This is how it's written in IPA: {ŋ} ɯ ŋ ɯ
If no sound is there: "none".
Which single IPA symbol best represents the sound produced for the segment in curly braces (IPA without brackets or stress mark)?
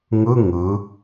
ŋ